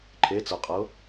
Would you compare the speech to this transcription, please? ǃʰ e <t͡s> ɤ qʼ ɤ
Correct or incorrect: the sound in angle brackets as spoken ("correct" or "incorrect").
correct